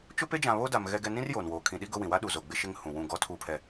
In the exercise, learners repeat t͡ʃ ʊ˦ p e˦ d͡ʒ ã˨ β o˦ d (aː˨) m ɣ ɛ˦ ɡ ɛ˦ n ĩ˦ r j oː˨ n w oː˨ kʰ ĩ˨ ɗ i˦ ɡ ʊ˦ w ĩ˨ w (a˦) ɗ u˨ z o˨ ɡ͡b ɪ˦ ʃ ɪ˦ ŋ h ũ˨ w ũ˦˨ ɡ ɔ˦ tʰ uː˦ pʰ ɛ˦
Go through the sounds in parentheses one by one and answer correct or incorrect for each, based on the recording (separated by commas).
incorrect, correct